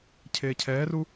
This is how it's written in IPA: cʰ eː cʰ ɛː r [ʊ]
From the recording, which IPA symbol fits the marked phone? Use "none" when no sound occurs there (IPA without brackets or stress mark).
u